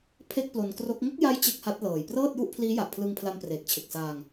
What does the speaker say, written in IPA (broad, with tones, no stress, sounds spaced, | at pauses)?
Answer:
pʰ e˥˩ k̚ p l o˧ n k r o˦˥ k̚ ŋ o˦˥ k̚ j a˦˥ j t͡ɕ e˥˩ k̚ h a˦˥ t̚ l ɤː˨˩ j p r ɤː˥˩ t̚ j u˥˩ ʔ pʰ l iː˦˥ j a˨˩ ʔ pʰ l ɯ˧ ŋ pʰ l a˧ m p r eː˨˩ k̚ t͡ɕʰ e˨˩ k̚ s aː˧ ŋ